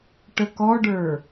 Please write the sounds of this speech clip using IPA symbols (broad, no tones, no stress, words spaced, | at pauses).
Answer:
ʈəkɔɖə˞